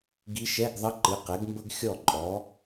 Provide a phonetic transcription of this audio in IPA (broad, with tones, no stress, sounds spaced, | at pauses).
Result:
ɡ i˧˥ ʃ ɛ˧˥˧ ɡ ðˤ ə˧˥˧ ǃ ɨ˩˥ q ɛ˩˥ ɡ m b ə˥ ɡ xʲ ɔ˥˩ ǃʼ ɔ˩˥